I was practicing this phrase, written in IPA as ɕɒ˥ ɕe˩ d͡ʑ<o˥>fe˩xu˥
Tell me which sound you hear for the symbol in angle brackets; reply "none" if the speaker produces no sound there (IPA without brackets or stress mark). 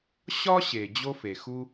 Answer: o˥